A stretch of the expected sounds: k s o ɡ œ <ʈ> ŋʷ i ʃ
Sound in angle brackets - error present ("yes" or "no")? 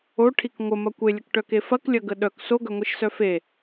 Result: yes